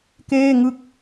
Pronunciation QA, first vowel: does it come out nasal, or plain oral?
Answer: oral